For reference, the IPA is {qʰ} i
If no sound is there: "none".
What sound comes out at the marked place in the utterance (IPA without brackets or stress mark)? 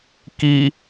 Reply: k